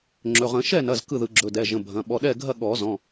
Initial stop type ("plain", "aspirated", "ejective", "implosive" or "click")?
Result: click